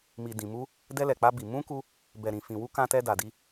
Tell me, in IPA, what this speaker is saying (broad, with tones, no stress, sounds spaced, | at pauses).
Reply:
m i˨ d ĩ˨ m u˧ | d ɛ˧ l ɛ˨ k͡p a˧ b i˨ m ũ˧ k u˧ | b ɛ˨ ɾ ĩ˨ f ĩ˨ w u˧ k ã˧ t ɛ˧ d a˨ d i˧